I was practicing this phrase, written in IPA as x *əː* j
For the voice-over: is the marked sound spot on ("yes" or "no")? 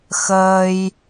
yes